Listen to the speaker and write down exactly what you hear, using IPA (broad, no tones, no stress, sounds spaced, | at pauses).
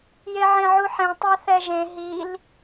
j e ʕ ẽ ʕ u ħ ẽ tˤ a θ ɛ ʒ ẽ ɦ i l